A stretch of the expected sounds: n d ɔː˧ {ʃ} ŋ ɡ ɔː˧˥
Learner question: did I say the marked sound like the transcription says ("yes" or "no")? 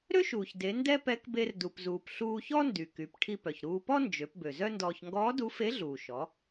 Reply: no